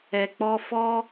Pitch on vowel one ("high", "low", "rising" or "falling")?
low